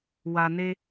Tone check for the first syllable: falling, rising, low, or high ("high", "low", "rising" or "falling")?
low